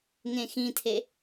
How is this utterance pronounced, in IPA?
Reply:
ŋ ẽ x ĩ tʰ e

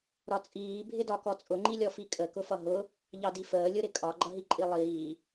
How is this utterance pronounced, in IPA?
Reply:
ɾ ɒ t͡sʼ iː bʱ ɪ d ɒ k ɔ t͡sʼ ʊ ŋ͡ǃ i lʲ ɔ f i kʼ ə k ʊ f ʌ ɦ ʊ | ʎ ɑ d i f əː lʲ ʊ ɾ ɪ kʼ ɒ ɡ͡ǃ ʌ ɦ i ǃʼ i lˠ iː

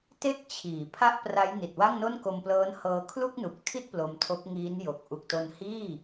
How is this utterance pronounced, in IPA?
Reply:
t e˦˥ k̚ t͡ɕʰ iː˩˦ pʰ a˥˩ ʔ p r a˦˥ j n i˨˩ t̚ w a˥˩ ŋ n o˥˩ n k o˧ m p l ɤː˦˥ n h ɤː˧ kʰ l u˥˩ k̚ n u˨˩ k̚ tʰ i˥˩ t̚ p l o˧ m tʰ o˦˥ k̚ ŋ iː˦˥ n j o˨˩ k̚ ʔ u˨˩ k̚ t o˧ n h iː˥˩

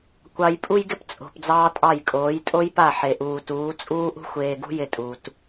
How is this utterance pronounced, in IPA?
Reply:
kʷ ɑ˨ j pʼ u˧ j ɡ ɪ˧ p t͡sʼ o̤˨ p d͡z ɑː˦ tʼ ɑ˦˨ j kʼ oː˨˦ j tʼ o˦ j p a˦˨ ħ e˨ ʔ uː˨ t uː˨˦ t͡sʼ uː˦ ʔ ṳ˦ xʷ eː˧ ɡ ṳ˦ j ɪ˦ tʼ u˧ t

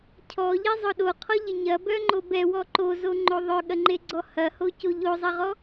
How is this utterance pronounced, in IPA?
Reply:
cʰ ɔ ʎ e zˤ ʊ ɗ o qʰ ɔ ʎ ɪ ɲ ɐ b œ ŋ͡ǃ o b ɛ w ɔ ǃ o z o ŋ͡ǃ o ðˤ œ ɠ ɐ ŋ͡ǃ e ɡ͡ǀ ɔ h ɐ h o c o ʎ o zˤ ɐ ʁ ɔ

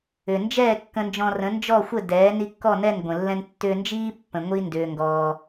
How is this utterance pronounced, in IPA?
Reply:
ʏ˩ n d͡ʒ ɛː˥˩ kː ə̃˧ n d͡ʒ ɔ̃˧ r ə̃˩˥ n d͡ʒ ɔ˥˩ xʷ ə˥˩ d ɛː˩˥ n i˧ kː ɔ˥˩ n ɛ˥˩ n ɡʷ ə̃˩ lː ɛ̃˧ n tː ʏː˧ n d͡ʒ iː˥ pː ə̃˩ ŋʷ i˥ n d ʏː˩ ŋ ɡ ɔː˩

